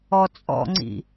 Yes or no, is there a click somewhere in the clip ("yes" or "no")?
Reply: yes